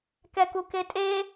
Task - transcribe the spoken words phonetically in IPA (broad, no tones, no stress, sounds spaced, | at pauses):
k ɛ k u k e tʼ e